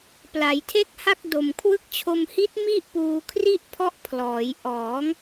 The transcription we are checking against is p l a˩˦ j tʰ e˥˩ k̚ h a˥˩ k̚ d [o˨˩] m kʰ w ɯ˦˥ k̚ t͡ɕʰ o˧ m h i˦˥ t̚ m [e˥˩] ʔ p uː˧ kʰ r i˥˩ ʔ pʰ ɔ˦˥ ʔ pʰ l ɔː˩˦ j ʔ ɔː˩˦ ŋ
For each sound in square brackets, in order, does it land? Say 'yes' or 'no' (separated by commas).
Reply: yes, no